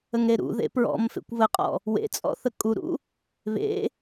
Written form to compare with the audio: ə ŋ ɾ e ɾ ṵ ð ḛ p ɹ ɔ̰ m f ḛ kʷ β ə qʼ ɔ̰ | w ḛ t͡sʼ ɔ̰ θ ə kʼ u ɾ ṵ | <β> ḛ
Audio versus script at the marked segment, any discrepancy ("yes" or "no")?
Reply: no